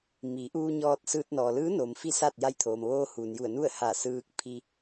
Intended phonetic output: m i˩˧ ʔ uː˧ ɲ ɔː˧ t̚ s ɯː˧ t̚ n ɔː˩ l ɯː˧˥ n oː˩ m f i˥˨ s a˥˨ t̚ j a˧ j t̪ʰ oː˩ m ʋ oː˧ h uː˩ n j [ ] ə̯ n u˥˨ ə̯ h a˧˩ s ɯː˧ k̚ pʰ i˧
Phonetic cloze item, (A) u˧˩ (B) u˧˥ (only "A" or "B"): A